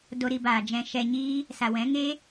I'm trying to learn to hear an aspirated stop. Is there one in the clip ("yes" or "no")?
no